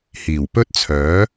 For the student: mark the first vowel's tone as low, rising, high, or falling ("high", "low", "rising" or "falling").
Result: low